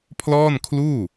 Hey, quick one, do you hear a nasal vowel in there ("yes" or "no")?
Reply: no